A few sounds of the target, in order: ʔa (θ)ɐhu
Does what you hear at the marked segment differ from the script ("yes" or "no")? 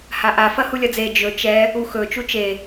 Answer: yes